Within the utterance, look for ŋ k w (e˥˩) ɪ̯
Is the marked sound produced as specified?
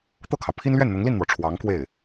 yes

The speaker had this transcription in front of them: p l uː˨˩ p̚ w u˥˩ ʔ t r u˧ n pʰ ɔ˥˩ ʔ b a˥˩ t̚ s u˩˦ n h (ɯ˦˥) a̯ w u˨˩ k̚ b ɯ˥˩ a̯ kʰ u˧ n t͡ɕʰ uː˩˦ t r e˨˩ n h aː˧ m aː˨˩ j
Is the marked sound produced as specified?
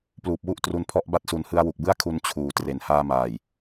no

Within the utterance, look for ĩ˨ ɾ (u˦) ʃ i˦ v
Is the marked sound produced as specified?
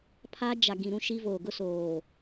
no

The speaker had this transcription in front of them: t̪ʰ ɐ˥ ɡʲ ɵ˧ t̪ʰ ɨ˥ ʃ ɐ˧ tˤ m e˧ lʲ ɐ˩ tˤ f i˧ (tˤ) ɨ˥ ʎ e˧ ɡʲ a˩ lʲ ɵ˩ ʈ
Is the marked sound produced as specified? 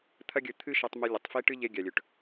no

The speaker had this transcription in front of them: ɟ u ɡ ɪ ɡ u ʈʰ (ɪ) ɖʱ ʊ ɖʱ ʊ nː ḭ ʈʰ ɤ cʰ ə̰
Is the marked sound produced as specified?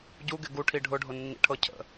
no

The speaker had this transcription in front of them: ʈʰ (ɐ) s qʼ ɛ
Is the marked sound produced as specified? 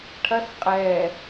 yes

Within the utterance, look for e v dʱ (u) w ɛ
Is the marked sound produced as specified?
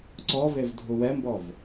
yes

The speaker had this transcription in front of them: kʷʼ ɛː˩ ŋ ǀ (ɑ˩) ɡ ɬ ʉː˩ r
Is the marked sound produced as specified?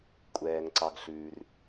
yes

